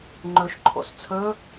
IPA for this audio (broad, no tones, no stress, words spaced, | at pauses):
ŋ͡ǃɵʃǃʰo̰s t͡sʰɵ